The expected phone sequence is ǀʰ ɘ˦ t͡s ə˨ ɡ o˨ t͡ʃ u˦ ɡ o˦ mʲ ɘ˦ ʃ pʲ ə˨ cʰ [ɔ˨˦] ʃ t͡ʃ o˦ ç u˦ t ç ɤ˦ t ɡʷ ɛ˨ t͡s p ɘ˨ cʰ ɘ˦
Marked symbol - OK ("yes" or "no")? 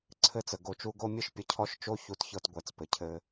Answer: no